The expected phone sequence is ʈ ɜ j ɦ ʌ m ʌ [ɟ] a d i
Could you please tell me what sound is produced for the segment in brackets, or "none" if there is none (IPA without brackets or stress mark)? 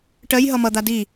d̪